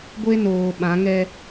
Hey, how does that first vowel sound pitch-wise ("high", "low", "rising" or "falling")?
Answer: high